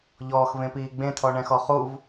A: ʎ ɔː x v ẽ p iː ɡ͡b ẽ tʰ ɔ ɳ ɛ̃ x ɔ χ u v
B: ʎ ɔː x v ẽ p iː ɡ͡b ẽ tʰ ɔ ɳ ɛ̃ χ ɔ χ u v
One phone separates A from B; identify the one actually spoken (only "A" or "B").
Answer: A